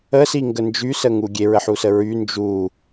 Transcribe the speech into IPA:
ə s i ŋ ɡ ə n d͡ʒ y s ə ŋ u ɡʲ e ɹ ə ħ u s ə ɹ y n d͡ʒ u

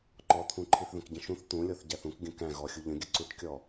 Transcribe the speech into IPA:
ǃ ɔ t̪ʰ ũ ǃʰ i θ ð ə̃ k ɟ ə̃ ʃ ũ θ t̪ ũ lʲ ɔ θ ɟ æ θ ũ k ɡʲ ə̃ k æ̃ ɣ ɔ xʲ u ʎ ə̃ ɡʲ ə ǀ u ʈ kʲ ɔ

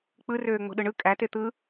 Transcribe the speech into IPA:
k͡p ɯ r øː ŋ͡m o̤ ɗ ɯ ɳ ɯ kʼ æ t e t̪ ɯ

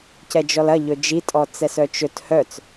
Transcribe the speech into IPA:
c ɛ d͡ʒ ɔ l ɐ ʎ ɵ d͡ʒ i tʼ ɔ t͡s ɛ s œ t͡ʃ ɵ t h œ t͡s

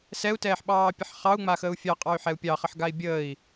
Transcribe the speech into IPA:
s ɛ u̯ t ɛː ħ ɓ ɑː pʲ ə ħ χ ɑ u̯ ŋ͡m a x əː u̯ fʲ ɑ qʼ ɑ y̯ ħ ɛ u̯ pʲ ɑ χ ə ħ ɡ a i̯ bʲ əː i̯

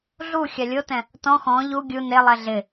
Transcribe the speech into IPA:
ɮ u xʲ a lʲ o t ɛ̃ | t ɔ̃ x ɔ̃ ʎ u ɡʲ u n e lˠ ɛ ɮ ɪ

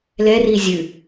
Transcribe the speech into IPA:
l ɛ r i zʲ ɨ

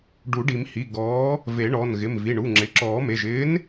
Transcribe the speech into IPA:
ɖ u˨˩˦ ɖ i˨˩˦ m h i˩˧˩ ɡ ɔː˨˥ | v e˨˩˦ ɳ ɔ˩˧˩ n ɣ ɪ˩˧˩ m v i˩˧˩ ɳ u˩˧˩ ŋ͡ǁ ɪ˩˧˩ ǁ ɔː˨˩˦ m e˩˧˩ ʒ ɪː˨˥ n

